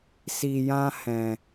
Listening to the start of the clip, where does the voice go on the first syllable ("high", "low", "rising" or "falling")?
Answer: low